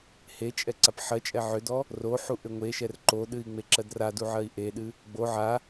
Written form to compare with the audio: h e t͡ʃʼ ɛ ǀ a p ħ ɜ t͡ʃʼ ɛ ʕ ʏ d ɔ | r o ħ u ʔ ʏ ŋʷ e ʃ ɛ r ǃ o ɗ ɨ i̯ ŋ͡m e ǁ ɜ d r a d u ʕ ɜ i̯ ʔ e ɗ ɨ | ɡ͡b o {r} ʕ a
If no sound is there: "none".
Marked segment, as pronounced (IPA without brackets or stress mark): none